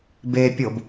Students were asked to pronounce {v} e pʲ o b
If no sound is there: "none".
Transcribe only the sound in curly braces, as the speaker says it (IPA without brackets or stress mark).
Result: b